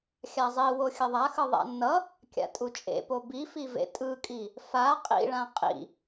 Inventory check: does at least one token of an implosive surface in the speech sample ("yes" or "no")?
no